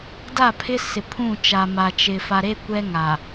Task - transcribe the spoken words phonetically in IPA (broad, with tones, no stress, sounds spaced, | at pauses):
d a˦˨ pʰ ɪ˦ s ɪ˨ pʰ ũ˦˨ t͡ʃ a˨ m a˨ t͡ʃ ɪ˨ f a˨ ɾ e˦ kʷ ɛ˦ ŋ a˨